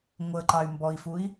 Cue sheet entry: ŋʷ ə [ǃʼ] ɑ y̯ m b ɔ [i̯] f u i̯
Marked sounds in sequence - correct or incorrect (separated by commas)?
incorrect, correct